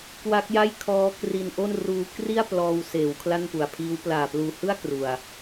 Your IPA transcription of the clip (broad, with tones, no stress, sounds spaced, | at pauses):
k w a˦˥ k̚ j a˥˩ j kʰ ɔː˦˥ k r i˧ n ʔ o˥˩ n r uː˦˥ k r i˥˩ a̯ p l ɔː˧ w s eː˩˦ w kʰ l a˥˩ n p u˨˩ a̯ pʰ iː˦˥ w p l aː˨˩ p l uː˨˩ h ɯ˥˩ a̯ k r u˨˩ a̯